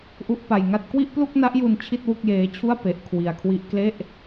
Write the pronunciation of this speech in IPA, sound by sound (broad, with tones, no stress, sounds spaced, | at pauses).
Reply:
ʔ u˥˩ ʔ p a˧ j ŋ a˥˩ t̚ k w i˥˩ ʔ p l u˥˩ k̚ n a˦˥ ʔ j u˧ n t͡ɕʰ i˥˩ t̚ w u˥˩ k̚ j eː˦˥ t͡ɕʰ u˥˩ a̯ p e˦˥ ʔ kʰ w i˧ a̯ kʰ w i˥˩ ʔ k l e˥˩ ʔ